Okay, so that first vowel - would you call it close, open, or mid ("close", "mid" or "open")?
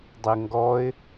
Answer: mid